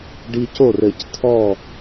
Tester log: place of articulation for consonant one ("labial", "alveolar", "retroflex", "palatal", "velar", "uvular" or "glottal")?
retroflex